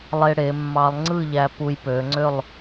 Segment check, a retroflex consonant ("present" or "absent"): present